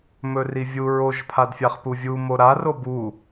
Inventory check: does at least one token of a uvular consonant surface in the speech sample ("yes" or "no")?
yes